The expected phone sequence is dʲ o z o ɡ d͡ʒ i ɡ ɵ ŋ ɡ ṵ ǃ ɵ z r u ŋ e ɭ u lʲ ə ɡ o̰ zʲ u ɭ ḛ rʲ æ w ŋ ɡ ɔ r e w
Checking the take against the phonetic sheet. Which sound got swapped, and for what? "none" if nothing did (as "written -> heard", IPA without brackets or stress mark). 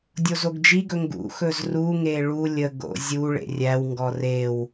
ǃ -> x